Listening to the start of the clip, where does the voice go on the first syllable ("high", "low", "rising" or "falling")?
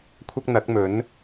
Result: high